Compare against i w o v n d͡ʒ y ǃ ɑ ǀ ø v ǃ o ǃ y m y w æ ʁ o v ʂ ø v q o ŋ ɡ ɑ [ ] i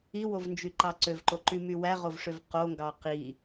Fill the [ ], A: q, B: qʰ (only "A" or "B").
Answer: A